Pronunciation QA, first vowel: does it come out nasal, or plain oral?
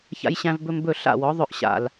oral